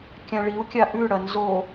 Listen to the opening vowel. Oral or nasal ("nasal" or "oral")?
nasal